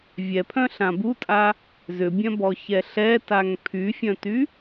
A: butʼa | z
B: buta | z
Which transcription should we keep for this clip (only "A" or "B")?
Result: A